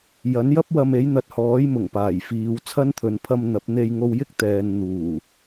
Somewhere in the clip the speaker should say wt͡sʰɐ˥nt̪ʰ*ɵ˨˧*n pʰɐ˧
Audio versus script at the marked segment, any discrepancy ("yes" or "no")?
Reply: no